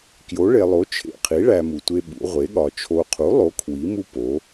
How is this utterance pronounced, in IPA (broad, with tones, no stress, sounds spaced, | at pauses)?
k j o˩˥ ɭ e˨ lˠ o˩˥ t͡ʃʰ ḛ˨ qʰ i˩˥ ɭ æ˨ m u˨ tʷ e˦ ɓ ṵ˩˥ ʁʷ e˩˥ ɠ ɒ˨ t͡ʃʰ o˨ qʰ u˩˥ lˠ o˩˥ kʰ w i˩˥ m u˦ p o˩˥